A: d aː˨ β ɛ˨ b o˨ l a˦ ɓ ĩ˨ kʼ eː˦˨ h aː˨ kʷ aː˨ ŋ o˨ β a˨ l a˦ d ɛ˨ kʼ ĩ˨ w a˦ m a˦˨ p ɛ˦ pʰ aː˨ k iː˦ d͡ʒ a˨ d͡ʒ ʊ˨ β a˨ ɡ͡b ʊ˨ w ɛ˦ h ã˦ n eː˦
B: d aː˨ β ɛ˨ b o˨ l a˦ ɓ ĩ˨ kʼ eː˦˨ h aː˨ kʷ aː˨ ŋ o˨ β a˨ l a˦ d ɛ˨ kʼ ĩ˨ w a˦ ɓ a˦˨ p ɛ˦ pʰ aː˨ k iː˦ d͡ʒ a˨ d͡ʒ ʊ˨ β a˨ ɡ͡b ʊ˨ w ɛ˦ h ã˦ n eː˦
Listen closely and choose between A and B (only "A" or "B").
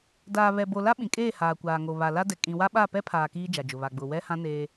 B